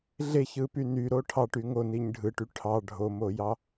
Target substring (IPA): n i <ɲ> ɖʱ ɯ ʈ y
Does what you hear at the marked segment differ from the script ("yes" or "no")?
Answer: no